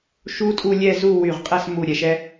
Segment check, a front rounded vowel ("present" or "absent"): present